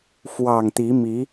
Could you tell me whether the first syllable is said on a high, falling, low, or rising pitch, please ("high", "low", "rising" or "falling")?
low